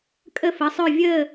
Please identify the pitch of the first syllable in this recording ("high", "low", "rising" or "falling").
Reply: falling